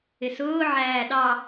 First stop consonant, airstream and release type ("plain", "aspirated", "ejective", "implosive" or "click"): implosive